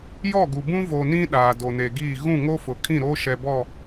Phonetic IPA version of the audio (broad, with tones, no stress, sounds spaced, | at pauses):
j ɔ˦˨ ɡ u˨ b ũ˦ v oː˨ n ĩ˦ ɗ aː˨ d o˨ n e˨ ɡ iː˦˨ ɣ ũ˦˨ ŋ o˦ f ʊ˨ kʰ ĩ˦˨ ɾ oː˦ ʃ ɛ˨ b ɔ˦˨